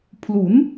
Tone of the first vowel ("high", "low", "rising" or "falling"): rising